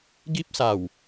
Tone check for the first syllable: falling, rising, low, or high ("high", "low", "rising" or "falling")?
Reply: high